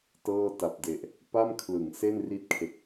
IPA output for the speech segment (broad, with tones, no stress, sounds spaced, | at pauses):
t ɤː˥˩ t a˨˩ p̚ d e˨˩ ʔ | p a˥˩ m kʰ l ɯ˩˦ ŋ s e˥˩ n r i˦˥ t̚ kʰ e˨˩ k̚